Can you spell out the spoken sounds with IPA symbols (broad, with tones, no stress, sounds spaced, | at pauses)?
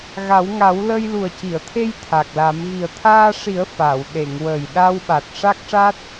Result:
ɣ a˨˩˦ w ŋ a˨˩˦ w l ə˧ j l u˨˩ ə̯ c i˨˩˨ ə̯ t̪ʰ e˧ j t̪ʰ a˨˩ k̚ l a˨˩˦ m ɣ i˨˩ ə̯ t̪ʰ aː˧ ʂ i˨˩˦ ə̯ f a˨˩˨ w ɗ e˨˩˨ ŋ w ə˨˩ j ɗ a˧ w ɓ a˨˩ t̚ ʂ a˦˥ k̚ ʂ a˦˥ t̚